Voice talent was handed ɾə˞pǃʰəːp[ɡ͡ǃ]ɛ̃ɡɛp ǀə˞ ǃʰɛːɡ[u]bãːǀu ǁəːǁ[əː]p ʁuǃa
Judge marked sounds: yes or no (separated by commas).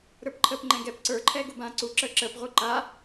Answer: no, yes, yes